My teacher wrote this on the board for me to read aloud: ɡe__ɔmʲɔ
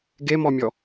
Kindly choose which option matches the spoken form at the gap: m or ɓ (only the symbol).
m